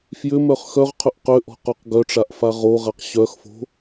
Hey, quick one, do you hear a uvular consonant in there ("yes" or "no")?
yes